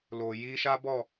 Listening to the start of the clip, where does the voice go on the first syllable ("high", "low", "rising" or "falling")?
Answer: low